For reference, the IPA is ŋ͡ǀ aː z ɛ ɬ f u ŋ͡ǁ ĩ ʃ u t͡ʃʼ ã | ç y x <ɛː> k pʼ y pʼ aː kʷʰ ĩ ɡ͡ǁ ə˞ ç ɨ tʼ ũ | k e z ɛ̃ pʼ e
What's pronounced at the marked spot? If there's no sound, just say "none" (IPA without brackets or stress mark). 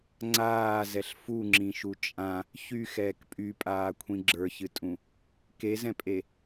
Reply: ɛː